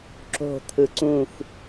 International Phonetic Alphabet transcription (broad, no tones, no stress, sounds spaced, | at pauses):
ǁ o̤ t̪ʰ ɯ ǀ ũ x